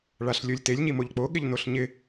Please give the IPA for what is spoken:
ɭaɬlʲolʲtelʲ ɲimoʎk͡po ɠɪʎnoɬɲɪ

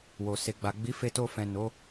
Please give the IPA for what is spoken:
wo˨se˨ɡ͡ba˨ ɡ͡bi˨˦fe˧to˧ fɛ̃˨ no˨˦

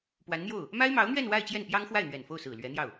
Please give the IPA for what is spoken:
pwa˧˥nn̪jo˥˩ʊ̯ | ma˥ɪ̯mɑ˧˥ʊ̯n̪ɥɛ˥˧n wa˥˧ɪ̯t͡ɕjɛ˥˩npjɑ˥ŋxwa˥˩ɪ̯ n̪ɥɛ˨˩nfo˥˩ʊ̯ sɹ̩˨˩lɥɛ˧˥n̪jɑ˥˩ʊ̯

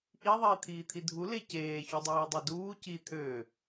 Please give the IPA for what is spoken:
ʔi ðˤiːt̪ʰiːt̪ʰidʱu leceː çudˤiːdˤeduː ci t̪ʰø

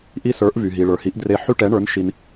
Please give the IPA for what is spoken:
ʔi˦sə˞˨˥ʔvy˨ɦi˨ ɭə˞˨hi˨˥ʔ dre˦ ħy˦ʈɛ˨˥ɳə˞˨˥n ʃi˦n

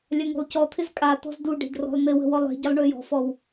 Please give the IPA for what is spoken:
lʲaŋṳlˠcɔt̪ʰɪz kʼat̪ɔ̤z duɖe̤ɖ rɔ̤lˠn̪ɪwə̤ wɔlˠe̤ɟəlˠ ɳøjɔ̤fɔw

